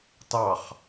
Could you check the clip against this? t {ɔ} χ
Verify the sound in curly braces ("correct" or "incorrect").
incorrect